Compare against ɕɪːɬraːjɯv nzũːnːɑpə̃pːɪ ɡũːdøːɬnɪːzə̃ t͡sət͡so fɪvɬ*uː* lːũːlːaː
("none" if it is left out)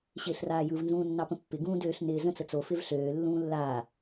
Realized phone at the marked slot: øː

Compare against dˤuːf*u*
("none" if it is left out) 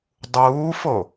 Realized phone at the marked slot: o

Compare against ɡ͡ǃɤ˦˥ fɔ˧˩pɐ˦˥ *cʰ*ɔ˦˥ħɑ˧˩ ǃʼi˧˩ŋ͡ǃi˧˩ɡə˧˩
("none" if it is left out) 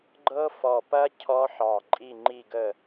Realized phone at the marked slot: cʰ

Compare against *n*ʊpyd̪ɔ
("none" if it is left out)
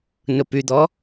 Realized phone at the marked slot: n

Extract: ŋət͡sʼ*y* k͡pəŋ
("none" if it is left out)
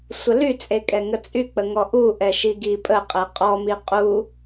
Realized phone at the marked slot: y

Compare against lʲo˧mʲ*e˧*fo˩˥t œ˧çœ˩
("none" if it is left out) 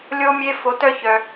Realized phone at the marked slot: e˧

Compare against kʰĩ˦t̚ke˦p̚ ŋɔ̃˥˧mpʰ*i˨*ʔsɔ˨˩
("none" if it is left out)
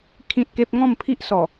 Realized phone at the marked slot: i˦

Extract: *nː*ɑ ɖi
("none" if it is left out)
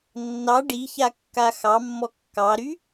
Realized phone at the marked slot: nː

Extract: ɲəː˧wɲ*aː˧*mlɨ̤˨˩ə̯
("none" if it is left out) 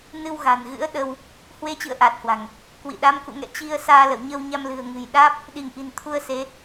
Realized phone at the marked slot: a˧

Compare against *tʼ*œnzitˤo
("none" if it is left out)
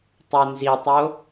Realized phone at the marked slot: tˤ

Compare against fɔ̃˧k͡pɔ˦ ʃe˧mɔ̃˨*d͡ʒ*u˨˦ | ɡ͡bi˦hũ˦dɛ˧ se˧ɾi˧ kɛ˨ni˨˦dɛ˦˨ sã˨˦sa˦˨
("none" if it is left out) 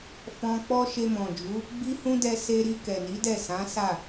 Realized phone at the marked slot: d͡ʒ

